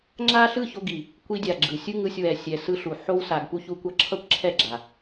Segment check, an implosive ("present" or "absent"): absent